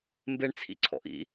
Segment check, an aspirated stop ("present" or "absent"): present